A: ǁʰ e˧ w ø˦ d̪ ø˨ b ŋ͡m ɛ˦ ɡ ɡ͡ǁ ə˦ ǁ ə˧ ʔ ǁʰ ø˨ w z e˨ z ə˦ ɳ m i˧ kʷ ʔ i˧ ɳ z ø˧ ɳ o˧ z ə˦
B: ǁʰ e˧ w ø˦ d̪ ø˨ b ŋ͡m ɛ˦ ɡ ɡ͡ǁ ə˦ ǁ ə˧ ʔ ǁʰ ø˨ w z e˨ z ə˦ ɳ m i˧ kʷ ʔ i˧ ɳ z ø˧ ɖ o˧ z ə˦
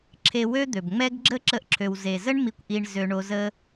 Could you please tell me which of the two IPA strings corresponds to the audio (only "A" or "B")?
A